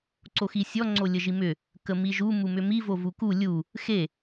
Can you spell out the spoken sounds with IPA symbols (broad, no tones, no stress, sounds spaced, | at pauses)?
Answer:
ǀ o x i sʲ ɔ ŋ͡ǀ o lʲ ə ʒ i m ʏ | k ə m i ʒ u m u m ʏ m i v o v u k u lʲ u | x e